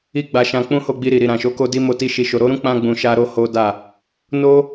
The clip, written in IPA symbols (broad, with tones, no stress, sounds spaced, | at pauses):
i˦ ɡ͡b a˧ ʃ ã˧ k͡p ũ˦ h o˧ ɡ͡b i˧ ɾ i˨ ɾ i˨ ɾ ã˨ ʃ o˨˦ k o˦ d i˦ m o˧ t i˦ ʃ i˧ ʃ o˧ ɾ o˦ ɾ ũ˦ k͡p ã˧ ɡ͡b ũ˨ ʃ a˧ ɾ o˧ h o˦ d a˦˨ | n o˦